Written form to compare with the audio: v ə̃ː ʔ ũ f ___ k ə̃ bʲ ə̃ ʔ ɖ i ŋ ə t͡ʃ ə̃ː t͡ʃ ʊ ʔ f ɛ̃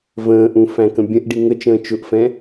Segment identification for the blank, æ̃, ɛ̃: æ̃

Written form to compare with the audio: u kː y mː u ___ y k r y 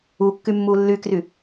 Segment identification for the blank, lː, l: lː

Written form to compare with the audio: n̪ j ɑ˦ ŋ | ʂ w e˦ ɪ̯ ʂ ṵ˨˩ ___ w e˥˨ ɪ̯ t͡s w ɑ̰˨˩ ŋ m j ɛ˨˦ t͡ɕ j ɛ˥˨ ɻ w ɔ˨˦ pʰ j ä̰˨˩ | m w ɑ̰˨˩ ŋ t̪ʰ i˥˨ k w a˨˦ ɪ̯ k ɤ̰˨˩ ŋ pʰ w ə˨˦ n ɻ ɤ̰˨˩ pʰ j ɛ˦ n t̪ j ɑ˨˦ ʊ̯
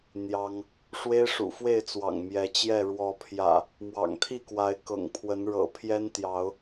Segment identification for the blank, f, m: f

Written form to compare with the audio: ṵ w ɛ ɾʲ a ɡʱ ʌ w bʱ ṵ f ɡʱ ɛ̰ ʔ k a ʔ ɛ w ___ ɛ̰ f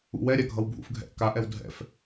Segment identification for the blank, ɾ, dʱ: dʱ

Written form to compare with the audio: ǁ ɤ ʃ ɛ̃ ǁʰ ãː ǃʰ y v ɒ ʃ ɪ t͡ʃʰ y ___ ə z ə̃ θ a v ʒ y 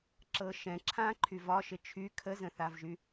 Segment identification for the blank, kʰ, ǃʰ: kʰ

